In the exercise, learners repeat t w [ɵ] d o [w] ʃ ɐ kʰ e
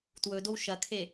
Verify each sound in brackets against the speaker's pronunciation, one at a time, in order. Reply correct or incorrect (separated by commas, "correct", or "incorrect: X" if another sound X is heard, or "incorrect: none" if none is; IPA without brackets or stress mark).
correct, correct